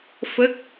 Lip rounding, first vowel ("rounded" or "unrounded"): unrounded